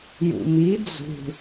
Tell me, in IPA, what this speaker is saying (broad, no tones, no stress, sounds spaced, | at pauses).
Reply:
j ṵ m i d͡z ṳ